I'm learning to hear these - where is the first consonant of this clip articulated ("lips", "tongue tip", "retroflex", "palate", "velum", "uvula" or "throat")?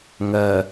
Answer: velum